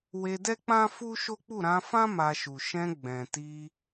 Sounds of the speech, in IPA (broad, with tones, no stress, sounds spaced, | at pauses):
w e˧ d ɛ˦ k͡p ã˦ f u˦ ʃ o˦ k͡p u˦˨ ɾ ã˧ f ã˦ m a˧ ʃ u˨ ʃ ɛ̃˧ ɡ͡b ɛ̃˨ t i˧